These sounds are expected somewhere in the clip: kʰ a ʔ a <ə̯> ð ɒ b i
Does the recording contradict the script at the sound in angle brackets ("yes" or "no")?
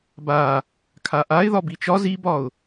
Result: yes